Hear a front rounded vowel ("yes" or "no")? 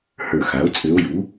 yes